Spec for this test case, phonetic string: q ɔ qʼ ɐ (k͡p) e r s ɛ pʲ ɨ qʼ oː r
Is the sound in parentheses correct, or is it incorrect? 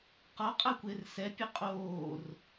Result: incorrect